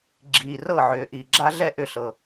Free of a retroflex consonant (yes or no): yes